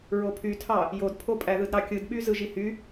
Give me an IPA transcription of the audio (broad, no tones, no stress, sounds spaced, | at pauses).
ɹ o pʰ y tʰ ɑ | j o d pʰ o pʼ æ ð ɯ d ɾ ɑ kʲ ɯ d ɓ y z ɯ ʒ i h y